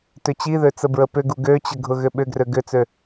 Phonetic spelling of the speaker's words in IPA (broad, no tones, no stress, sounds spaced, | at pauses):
t ʏ t͡ɕ i ð ø t͡s ə b ɹ ə p ʏ ɡ u ɡ ø t͡ɕ ə ɡʱ ʊ ɣ ʏ ɓ ʏ ɡ r ø ɡ ʏ t͡s ø